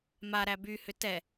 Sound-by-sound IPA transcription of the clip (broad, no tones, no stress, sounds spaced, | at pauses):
m a ɾ æ b y h ʏ t ɛ